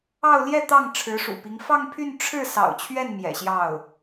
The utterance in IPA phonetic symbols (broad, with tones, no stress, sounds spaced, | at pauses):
ɑ˥˧ ʊ̯ l j ɛ˥˧ t̪ ɑ˥˩ ŋ ʈ͡ʂʰ ɻ̩˧˥ ʂ ṵ˨˩ p i˧˥ ŋ f ɑ˥˧ ŋ pʰ y˥˧ n ʈ͡ʂʰ ɻ̩˥˩ s ɑ̰˨˩ ʊ̯ t͡ɕʰ ɥ ɛ˥˩ n m j ɛ̰˨˩ ɕ j ɑ˥˩ ʊ̯